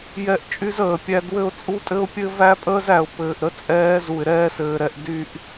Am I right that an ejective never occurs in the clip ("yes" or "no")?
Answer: no